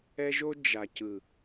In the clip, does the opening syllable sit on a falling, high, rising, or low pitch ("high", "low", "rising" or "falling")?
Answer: high